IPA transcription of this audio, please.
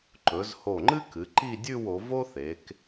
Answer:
ǃ ɵ˩˧ z h o˧˩ ŋ͡ǃ ɨ˥ k ɨ˩˧ ǃ i˥˧ dʲ ʉ˥˧ w o˩˧ v o˥ θ e˩˧ k

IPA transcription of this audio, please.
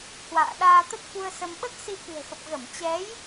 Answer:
h w a̰ː˧˨ ɗ aː˧ t̪ ə˦˥ t̚ f u˧ ə̯ s ə˧ m ɓ ə˦˥ t̚ s i˧ k ɨ̤˨˩ ə̯ x ə˨˩ p̚ ɣ ə˧˩ m t͡ɕ ɛ˨˦ j

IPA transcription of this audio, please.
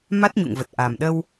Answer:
m a˦˥ t̚ ɲ ṵ˧˨ ŋ v ə˨˩ t̚ ʔ a˨˩ m ɗ ə˧ w

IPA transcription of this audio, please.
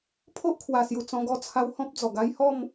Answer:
pʰ o˦ ʔ kʰ w a˨˩ s j u˨˩ t͡s ɔ̃˧ ɡ ɔ˧ t͡sʰ a˧ w h ɔ̃˦ p̚ d͡z ɔ˨˩ ɡ a˦ j h ɔ˥˧ m

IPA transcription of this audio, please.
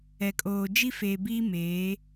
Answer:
ɛ˨ kʼ oː˨ d͡ʒ i˦ f eː˨ b iː˦ m eː˨˦

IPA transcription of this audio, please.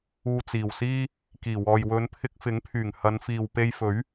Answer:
uː˧ t͡s iː˨˩ w s iː˥ | k iː˨˩ w ɔː˨ j w ɵ˨˧ n pʰ ɪ˧ k̚ f ɪ˨˥ ŋ pʰ yː˨˩ ŋ h ɐ˨˧ n f iː˨ w p e˧ j f ɵ˨˥ ɥ

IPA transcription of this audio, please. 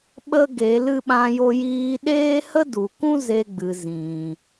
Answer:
ɓ ə˦ ɡ e˨˦ l ɨ˧ ɓ ã˧ j o˧ j iː˧ ɗ eː˦ h ə˦ d u˨ k ũ˦ z e˧ ɡ͡b ɨ˨ z ĩ˨

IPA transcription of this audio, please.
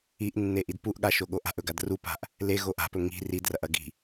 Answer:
i ʔ nː e ʔ i d p u ʔ ɠ a ʃ o ɠ o ʔ a̤ ʔ ɵ ɡ a d r u p a̤ ʔ | l e ɣ o ʔ a̤ p ɵ ŋ i̤ r i d r ɐ ʔ ɐ ɡ i̤

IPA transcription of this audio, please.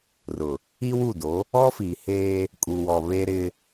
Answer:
r ʊ˨ | i˦ w u˦˨ d o˨˦ | ɔ˦ f i˨ h eː˦ | kʼ u˨ w ɔ˨ β e˦ ɾ ɪ˦

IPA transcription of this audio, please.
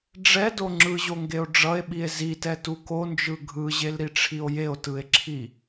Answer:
ɖ͡ʐ ɛ d o ŋ͡ǁ ɯ ʑ o ŋ ɡ e o̯ ɖ͡ʐ ʌ e̯ ɓ i e̯ z i t ɛ t u k o n d͡ʒ ɯ ɡʱ ɯ ʑ e l ɾ i ʈ͡ʂʰ i o̯ j e o̯ t ɯ e̯ ǁʰ i

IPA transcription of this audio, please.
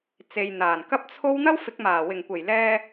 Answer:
t͡s e˨ j n̪ aː˨˩ n k ɐ˥ p̚ t͡sʰ o˥ w n̪ ɐ˥ w f ɪ˨˥ k̚ m aː˨˩ w ɪ˨˩ ŋ kʷ e˨˩ j l ɛː˧

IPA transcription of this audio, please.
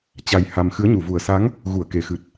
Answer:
t͡ɕ a˧ j h a˧ m x ɨ˨˦ ə̯ ɲ u˨˩ v u˨˩ ə̯ s a˨˦ ŋ | ɣ u˧˩ ə̯ k e˨˩ x ɨ˨˩ t̚

